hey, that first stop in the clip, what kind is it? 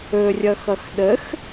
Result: implosive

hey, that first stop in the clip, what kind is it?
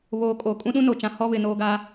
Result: ejective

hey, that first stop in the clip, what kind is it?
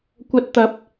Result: plain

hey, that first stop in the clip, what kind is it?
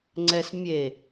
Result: click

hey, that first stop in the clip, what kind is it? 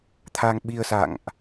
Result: aspirated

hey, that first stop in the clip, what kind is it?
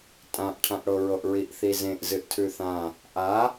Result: ejective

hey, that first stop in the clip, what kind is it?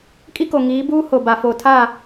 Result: ejective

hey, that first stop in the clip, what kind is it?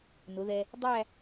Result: plain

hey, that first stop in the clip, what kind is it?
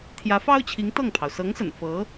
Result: aspirated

